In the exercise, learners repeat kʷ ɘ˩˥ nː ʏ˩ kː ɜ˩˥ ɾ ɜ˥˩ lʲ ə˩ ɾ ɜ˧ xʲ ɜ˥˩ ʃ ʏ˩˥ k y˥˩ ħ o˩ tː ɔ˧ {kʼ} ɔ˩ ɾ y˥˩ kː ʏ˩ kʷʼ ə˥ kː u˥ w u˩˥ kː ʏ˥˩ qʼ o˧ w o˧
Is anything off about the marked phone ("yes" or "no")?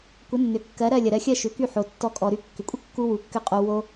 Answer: no